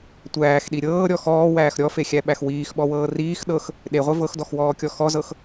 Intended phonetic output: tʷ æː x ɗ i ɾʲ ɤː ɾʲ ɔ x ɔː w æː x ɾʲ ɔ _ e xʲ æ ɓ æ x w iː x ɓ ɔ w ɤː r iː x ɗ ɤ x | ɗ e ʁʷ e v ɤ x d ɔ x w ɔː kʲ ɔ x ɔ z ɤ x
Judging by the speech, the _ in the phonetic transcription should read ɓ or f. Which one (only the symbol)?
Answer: f